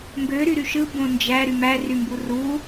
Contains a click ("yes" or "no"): no